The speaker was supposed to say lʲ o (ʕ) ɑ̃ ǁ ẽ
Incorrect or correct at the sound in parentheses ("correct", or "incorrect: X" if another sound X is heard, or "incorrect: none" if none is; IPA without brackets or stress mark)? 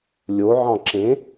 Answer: correct